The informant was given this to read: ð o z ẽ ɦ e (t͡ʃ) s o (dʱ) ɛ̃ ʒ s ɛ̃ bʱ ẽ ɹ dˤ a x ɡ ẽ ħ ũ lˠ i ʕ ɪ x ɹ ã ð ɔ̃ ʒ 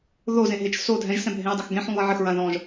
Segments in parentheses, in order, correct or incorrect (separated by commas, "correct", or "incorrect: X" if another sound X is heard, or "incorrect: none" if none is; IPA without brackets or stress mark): correct, correct